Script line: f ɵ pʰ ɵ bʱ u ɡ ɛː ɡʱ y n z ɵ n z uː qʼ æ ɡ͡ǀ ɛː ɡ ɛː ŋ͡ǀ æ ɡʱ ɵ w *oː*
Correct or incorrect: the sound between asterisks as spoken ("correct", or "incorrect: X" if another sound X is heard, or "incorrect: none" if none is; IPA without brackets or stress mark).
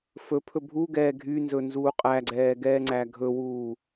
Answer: incorrect: uː